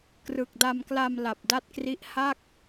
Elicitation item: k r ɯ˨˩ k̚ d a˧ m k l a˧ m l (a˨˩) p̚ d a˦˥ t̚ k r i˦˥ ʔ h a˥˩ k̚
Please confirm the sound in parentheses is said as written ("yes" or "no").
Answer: yes